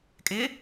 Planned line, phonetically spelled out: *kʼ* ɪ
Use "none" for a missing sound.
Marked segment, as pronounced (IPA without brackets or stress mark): kʼ